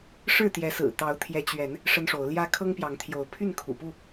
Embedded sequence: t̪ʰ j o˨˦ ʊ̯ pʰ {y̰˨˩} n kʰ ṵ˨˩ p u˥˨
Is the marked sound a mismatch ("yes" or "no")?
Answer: yes